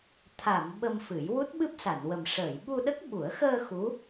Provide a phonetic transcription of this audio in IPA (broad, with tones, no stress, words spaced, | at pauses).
t̪ʰa˨˩˨m ɓə˧mfɨ˨˩˦j wu˦˥t̚ɓɨ˦˥p̚sa˨˩˨nwə˨˩m ʂəː˨˩˨jɓu˧ɗə˦˥k̚ ɓu˨˩˦ə̯xəː˧ xu˧˥